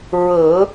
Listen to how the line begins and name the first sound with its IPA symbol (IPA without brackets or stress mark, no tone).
ɹ